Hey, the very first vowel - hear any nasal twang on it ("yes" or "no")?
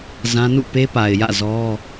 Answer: yes